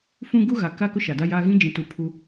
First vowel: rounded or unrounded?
rounded